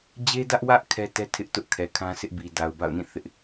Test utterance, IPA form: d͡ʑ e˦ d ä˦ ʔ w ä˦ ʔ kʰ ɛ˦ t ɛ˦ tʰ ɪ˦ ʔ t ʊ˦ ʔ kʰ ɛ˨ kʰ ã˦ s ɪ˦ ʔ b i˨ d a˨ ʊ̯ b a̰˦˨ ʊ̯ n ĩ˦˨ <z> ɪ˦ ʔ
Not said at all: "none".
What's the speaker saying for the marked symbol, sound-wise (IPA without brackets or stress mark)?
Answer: θ